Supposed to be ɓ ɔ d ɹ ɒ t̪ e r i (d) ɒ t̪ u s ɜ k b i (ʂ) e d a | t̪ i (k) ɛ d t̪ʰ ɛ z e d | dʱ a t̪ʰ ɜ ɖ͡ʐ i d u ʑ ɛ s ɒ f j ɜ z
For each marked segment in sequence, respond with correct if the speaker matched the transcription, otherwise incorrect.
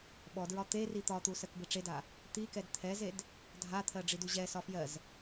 incorrect: t̪, incorrect: ʈ͡ʂ, correct

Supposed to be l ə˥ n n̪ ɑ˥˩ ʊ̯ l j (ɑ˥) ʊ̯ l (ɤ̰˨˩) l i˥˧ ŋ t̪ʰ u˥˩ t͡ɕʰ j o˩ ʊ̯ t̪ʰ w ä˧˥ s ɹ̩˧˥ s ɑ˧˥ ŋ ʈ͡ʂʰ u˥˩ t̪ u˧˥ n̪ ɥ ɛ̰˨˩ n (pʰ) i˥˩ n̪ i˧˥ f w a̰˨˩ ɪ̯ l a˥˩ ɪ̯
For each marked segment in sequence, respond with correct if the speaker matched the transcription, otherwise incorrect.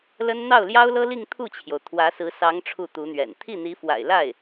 correct, incorrect: ɤ˥, incorrect: t̪ʰ

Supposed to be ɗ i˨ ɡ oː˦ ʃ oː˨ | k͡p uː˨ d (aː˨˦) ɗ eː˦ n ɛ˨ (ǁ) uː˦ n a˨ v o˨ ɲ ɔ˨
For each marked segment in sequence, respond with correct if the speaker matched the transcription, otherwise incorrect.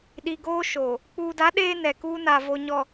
incorrect: a˨˦, incorrect: k

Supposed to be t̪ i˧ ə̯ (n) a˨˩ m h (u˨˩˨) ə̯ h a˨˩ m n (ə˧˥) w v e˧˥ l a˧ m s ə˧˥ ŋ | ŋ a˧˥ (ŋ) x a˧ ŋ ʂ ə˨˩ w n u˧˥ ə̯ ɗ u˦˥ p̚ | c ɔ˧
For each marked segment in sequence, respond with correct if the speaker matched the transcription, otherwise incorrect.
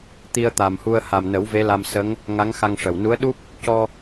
incorrect: t̪, incorrect: u˧, incorrect: ə˨˩˦, correct

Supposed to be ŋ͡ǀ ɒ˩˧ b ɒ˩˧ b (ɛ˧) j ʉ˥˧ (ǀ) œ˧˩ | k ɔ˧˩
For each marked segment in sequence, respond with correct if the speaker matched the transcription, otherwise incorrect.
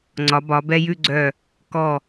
correct, incorrect: ɡ͡ǀ

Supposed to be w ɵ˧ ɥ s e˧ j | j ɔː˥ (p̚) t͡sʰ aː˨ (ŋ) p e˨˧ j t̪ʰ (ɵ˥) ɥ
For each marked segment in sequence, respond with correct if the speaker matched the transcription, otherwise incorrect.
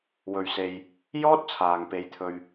incorrect: t̚, correct, incorrect: ɵ˧

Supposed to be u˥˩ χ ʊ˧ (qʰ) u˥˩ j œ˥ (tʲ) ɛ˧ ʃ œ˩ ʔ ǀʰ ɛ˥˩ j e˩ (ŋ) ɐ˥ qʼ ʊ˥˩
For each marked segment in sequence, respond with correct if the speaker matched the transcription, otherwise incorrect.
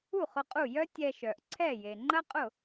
incorrect: qʼ, correct, incorrect: ŋ͡ǃ

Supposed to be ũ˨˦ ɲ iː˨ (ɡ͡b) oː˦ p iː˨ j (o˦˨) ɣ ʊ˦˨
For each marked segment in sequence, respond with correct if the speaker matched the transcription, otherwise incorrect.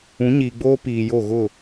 correct, correct

